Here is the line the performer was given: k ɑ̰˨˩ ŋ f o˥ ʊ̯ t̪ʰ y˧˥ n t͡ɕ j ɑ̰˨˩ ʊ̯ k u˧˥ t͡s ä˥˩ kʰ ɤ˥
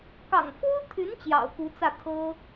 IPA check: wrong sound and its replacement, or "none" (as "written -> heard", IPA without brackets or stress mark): none